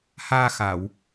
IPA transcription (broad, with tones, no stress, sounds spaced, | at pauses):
h aː˧ x a˨˩˨ w